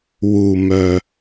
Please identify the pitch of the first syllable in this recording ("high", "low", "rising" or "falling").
low